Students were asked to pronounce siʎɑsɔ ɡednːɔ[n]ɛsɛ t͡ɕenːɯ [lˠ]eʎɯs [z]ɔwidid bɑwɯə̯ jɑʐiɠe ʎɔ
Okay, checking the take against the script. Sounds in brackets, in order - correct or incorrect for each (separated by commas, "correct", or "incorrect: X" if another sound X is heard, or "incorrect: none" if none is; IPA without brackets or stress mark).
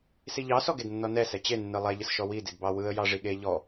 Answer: correct, correct, incorrect: ʃ